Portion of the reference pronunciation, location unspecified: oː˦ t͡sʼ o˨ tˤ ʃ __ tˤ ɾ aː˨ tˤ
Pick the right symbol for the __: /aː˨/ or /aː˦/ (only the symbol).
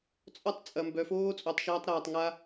aː˦